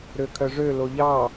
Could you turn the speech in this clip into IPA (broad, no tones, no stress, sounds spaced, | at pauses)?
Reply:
ɾ ø kʰ œ ʐ ø l o ʎ ɑ